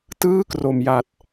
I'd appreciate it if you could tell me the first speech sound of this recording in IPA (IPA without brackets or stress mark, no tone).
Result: t